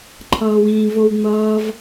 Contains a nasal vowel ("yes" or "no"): yes